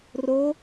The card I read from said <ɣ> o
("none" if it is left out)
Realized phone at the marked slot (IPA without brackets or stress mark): r